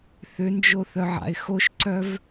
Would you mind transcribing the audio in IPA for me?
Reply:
θ ʏ n d͡ʒ o θ œ ʕ a̰ ɪ̯ x o ʃ ǀ œ v

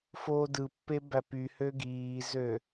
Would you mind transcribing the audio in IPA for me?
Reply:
f oː d ɯ pː e b æ p y h ø ɡ iː z ø

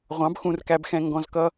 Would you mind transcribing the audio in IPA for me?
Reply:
ʁʷ ɑ̃˨˦ b x ũ˧ r k æ˧ b x ɛ̃˧ ŋ ɡ ɔ̃˧ z k ʌ˦

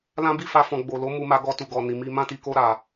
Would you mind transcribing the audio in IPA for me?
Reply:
l ã˦ b i˦˨ f a˧ f ɔ̃˨ ɡ͡b o˨ l o˨˦ m u˧ m a˧ ɡ ɔ˧ t u˨ ɡ ɔ˨ n i˨ m i˧ m ã˦ t i˧ k o˦ ɾ a˧

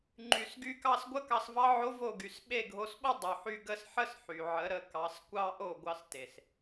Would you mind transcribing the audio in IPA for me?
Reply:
ŋ͡ǃ y˩ s ɡ y˧ k ɑ˥˩ s ɡʷ ə˥ k ɑ˧ s v ɑ˥ ʕ o˥ v o˥˩ ɡ y˩˥ s ɓ e˥˩ ɡʱ o˧ s ɓ o˥ dˤ y˩ ħ y˧ ɡ ə˥˩ s ħ ə˥ s ħ y˩ ʕ ə˩˥ ɾ ə˩˥ k ɑ˩˥ s kʷ ɑ˥ ʔ o˥˩ ɡʷ ɑ˧ s t e˩ s

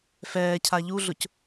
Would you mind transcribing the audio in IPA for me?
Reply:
f ɛː cʰ a ʎ u ɮ ʊ c

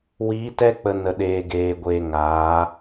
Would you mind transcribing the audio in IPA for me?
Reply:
w iː˨˦ t ɛ˧ k͡p ə˨ n ə˨ ɗ eː˨ ɡ eː˨ ɡʷ eː˨ ŋ aː˨˦

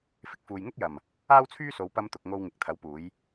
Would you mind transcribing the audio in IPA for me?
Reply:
f ɪ˧ k̚ f uː˨ j ŋ ʊ˥ k̚ j ɐ˨˩ m | aː˥ w t͡sʰ yː˥ s o˨˧ w p ɐ˧ m t̪ ʊ˨ k̚ ŋ o˧ w ŋ ɪ˨˥ k̚ t̪ʰ ɐ˨˥ w p uː˨˧ j

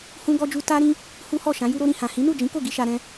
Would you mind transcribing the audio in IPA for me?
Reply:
h ũ˦ ɡ ɔ˦ d͡ʒ u˦ t a˦ ɾ ĩ˦ | h u˦ h ɔ˦˨ ʃ ã˨˦ j u˧ ɾ o˧ ɾ ĩ˨ h ã˨ h ĩ˨˦ n u˦˨ d͡ʒ ĩ˨˦ k o˦˨ ɡ i˧ ʃ a˧ ɾ ɛ̃˦

